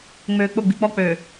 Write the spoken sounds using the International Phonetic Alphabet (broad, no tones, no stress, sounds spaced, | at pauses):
ŋ͡m øː k͡p ʊ ɡ͡b i̤ k͡p ɔ k͡p øː